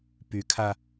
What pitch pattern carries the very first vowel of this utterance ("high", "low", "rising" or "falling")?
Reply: rising